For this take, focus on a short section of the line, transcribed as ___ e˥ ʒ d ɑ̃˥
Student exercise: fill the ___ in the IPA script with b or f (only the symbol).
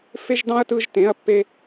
f